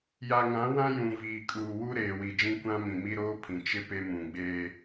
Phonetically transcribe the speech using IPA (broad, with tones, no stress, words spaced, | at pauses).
ja˨ŋã˨˦wã˦ jũ˨ viː˨kʼuː˨wu˦ ɾeː˨wi˨d͡ʒĩ˦ kʷã˦ mĩ˨mi˦ɾoː˦pʰĩ˨ t͡ʃɪ˦ pe˦mũ˨ ɡ͡beː˦